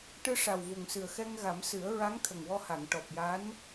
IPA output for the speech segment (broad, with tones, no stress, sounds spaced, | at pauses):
ʈ ɨ˧ ʂ a˨˩ w v u˨˩ ŋ s ɨ˨˩ ə̯ x ɛ˧ ŋ ɣ a˨˩˦ m s ɨ˨˩˦ ə̯ ɹ a˧˥ ŋ t̪ʰ ə˨˩ ŋ w ɔ˧ h a˨˩˨ ŋ ʈ ɔ˨˩ p̚ j a˧˥ n